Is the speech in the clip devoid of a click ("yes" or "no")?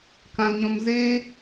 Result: yes